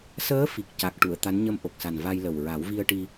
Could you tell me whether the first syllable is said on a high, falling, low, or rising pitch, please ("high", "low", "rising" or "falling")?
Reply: rising